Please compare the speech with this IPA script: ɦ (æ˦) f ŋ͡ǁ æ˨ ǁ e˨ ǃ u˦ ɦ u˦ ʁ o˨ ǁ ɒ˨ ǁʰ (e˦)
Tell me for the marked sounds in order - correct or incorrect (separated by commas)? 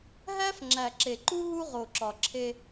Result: correct, correct